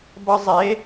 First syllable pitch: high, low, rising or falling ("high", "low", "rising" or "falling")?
high